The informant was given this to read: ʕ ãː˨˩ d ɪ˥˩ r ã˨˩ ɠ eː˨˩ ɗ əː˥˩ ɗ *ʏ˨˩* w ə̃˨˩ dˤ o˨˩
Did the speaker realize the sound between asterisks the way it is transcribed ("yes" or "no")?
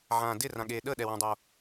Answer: no